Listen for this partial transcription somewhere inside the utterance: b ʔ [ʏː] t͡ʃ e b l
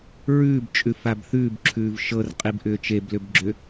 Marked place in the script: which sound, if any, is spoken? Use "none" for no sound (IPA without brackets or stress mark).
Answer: ʏː